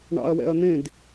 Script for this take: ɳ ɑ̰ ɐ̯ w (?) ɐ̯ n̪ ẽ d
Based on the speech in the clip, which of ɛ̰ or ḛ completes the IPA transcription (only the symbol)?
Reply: ɛ̰